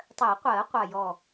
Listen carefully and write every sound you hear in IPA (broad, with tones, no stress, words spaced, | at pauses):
tˤɜ˨˩˦qʷɜ˨˩˦ qʷa˧˩jɔ˧˩